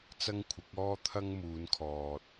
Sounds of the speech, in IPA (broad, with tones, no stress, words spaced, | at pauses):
t͡sɐ˥ŋkʷʰɪ˨˥k̚ɔː˥ t̪ʰɐ˥ŋmuː˨˧nkʰɔː˨t̚